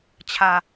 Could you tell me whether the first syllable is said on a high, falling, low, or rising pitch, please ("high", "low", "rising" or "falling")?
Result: low